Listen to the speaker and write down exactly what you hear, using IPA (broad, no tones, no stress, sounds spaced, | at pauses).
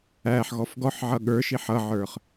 æ ħ ɣ ɔ f ɡ ɔ ħ ʕ ʌ ɠ ə˞ ʃ i ħ ʌ ʕ ə˞ χ